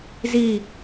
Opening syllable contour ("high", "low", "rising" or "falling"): falling